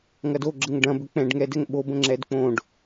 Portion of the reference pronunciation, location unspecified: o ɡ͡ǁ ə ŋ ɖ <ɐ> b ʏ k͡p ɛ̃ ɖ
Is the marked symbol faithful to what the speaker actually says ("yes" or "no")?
no